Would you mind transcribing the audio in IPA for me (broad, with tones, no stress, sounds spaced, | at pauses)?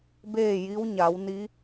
b eː˥˨ j i˧˥ w ɲ a˩˧ w n i˧˥